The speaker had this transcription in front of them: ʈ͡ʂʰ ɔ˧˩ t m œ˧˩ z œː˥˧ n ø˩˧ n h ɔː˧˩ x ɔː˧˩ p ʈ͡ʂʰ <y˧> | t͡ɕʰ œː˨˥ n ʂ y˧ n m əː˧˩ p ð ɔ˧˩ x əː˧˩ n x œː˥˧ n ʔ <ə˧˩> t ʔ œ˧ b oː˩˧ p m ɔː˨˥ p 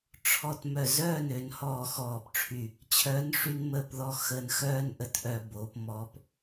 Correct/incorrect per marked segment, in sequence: incorrect: y˧˩, correct

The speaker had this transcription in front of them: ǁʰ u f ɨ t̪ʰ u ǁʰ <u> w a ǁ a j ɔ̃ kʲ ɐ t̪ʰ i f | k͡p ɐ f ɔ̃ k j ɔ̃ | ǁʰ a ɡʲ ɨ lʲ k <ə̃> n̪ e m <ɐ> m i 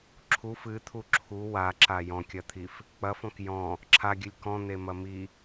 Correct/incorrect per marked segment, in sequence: correct, incorrect: ɔ̃, correct

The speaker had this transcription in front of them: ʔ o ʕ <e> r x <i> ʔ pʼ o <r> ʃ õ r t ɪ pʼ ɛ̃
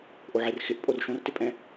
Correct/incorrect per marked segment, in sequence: correct, incorrect: ɪ, correct

